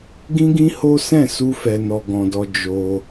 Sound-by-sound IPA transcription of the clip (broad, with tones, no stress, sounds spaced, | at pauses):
ɡ ĩ˦ ɡ ĩ˦ h o˦ s ɛ̃˦˨ s u˧ f ɛ˨ n ɔ˨ ɡ ɔ̃˨ d ɔ˧ d͡ʒ o˧